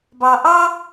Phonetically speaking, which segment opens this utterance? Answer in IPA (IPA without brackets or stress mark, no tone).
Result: b